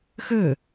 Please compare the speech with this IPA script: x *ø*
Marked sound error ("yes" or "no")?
no